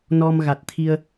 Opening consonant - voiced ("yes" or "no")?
yes